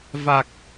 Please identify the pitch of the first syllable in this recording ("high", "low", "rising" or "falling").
low